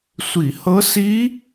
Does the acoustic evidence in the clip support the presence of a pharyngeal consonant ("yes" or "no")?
no